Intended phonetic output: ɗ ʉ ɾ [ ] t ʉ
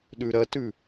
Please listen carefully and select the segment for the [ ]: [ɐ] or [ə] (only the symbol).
ɐ